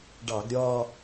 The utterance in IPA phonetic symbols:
ɖ ɑ˧˩˧ ɡ ɾʲ ɒː˥˧

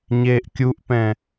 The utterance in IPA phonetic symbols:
ɲ eː ʔ kʲ u ʔ p ɛ̃

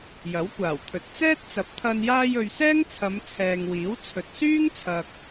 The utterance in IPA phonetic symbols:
j ɐ˨˥ w kʷ aː˨˩ w t̪ʰ ɵ˨ t̚ t͡s ɛː˥ t̚ t͡s ɐ˨˥ p̚ t̪ʰ ɐ˧ n j aː˧ j ɵ˨ ɥ s ɛː˥ ŋ t͡sʰ ɐ˨˧ m t͡sʰ ɛː˨ ŋ w iː˨˥ w t͡sʰ ɵ˨ t̚ s yː˥ ŋ t͡sʰ ɐ˨ k̚

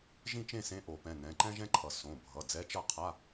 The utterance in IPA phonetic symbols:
ʒ ĩ˦˨ t͡ʃ ẽ˦˨ s ẽ˨˥ ʔ o˨˩˦ p ɛ̃˩˧˩ n ɛ̃˩˧˩ ǃ ɛ̃˥ ʒ ɛ̃˥ ǃʰ ʌ˨˩˦ s õ˩˧˩ bʱ ʌ˩˧˩ d͡z ɛ˨˥ t͡ʃ ʌ˦˨ qʰ a˧˥˧

